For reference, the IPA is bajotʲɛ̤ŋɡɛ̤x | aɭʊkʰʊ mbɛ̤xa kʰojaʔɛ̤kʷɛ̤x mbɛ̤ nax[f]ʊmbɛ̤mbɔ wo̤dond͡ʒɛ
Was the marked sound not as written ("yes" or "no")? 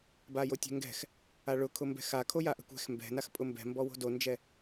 yes